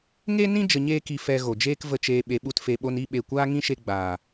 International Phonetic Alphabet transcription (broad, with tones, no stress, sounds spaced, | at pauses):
ŋ e˦ n ĩ˦ d͡ʒ ə˧ ɲ eː˦ k i˧ f ɛ˧ ɣ o˨ d͡ʒ eː˦ k v ə˧ t͡ʃ eː˧ ɓ e˧ ɓ u˦ t f e˧ ɓ o˦ n i˧ ɓ e˨ kʷ aː˦ ŋ ĩ˦ ʃ e˧ ɡ͡b aː˨